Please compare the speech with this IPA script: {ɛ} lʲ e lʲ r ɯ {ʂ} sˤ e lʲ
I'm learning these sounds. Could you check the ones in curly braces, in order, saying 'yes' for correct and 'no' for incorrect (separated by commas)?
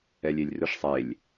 yes, yes